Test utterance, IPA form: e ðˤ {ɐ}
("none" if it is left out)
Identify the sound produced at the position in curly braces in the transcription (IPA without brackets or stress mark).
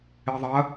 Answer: ɐ